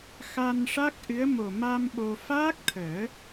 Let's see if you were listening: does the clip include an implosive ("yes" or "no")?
yes